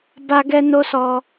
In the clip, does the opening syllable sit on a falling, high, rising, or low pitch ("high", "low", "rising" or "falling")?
high